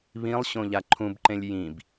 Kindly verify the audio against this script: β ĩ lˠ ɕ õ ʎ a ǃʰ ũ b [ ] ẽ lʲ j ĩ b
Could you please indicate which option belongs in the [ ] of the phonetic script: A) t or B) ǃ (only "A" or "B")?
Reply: B